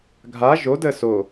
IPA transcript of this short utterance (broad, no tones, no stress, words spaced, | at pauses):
ɡʱa ʒo dəːso